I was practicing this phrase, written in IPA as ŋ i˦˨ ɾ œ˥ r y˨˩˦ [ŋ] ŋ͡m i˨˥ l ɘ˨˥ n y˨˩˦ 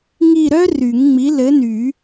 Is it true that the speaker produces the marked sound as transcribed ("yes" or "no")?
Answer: yes